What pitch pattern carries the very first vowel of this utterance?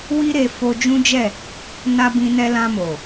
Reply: high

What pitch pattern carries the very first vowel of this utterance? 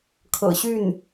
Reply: low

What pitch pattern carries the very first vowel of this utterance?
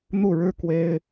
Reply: falling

